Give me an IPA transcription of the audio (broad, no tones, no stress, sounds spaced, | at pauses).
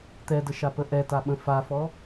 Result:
t̪ ɛ d ə ʃ a p ə ʔ ɛ t a ɓ ə̃ f a f ɔ